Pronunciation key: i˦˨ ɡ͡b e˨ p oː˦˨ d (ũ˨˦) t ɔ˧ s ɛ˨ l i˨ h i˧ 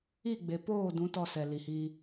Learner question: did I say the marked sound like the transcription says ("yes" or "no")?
yes